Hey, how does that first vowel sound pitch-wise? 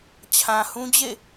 low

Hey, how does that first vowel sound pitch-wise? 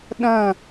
falling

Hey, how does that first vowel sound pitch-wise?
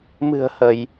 low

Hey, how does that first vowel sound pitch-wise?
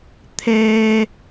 high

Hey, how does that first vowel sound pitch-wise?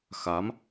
rising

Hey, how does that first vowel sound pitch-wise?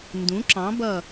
rising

